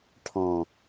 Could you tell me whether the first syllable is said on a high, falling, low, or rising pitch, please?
low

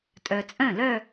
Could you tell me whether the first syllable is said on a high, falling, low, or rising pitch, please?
low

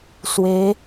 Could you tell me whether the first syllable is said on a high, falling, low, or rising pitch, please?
rising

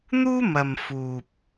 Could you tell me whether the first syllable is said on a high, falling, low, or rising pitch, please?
high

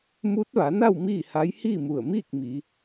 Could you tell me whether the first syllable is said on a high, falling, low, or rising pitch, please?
rising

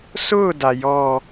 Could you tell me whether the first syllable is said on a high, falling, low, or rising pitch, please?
falling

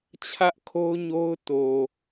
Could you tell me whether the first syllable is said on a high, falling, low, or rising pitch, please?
high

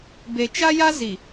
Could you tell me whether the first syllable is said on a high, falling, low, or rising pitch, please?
low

